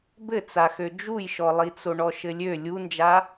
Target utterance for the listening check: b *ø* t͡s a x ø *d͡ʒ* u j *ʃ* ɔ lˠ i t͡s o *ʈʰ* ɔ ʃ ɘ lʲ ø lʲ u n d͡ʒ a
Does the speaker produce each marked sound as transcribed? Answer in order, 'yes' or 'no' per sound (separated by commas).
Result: no, yes, yes, no